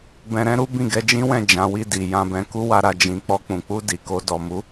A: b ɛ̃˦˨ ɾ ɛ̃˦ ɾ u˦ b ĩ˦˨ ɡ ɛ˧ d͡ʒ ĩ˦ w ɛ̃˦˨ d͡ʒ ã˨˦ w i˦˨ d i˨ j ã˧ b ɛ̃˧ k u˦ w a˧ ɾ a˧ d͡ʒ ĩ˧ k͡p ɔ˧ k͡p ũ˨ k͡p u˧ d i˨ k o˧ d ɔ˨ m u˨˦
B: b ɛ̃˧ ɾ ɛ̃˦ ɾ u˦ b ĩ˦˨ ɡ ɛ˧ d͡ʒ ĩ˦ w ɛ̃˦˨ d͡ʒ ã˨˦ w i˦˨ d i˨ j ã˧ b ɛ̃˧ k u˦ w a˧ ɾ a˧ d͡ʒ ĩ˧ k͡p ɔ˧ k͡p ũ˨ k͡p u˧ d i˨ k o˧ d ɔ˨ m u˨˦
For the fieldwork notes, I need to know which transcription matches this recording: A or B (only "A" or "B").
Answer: B